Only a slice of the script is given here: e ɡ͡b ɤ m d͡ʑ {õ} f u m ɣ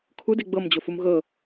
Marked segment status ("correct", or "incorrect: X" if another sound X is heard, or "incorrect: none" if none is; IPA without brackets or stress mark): incorrect: o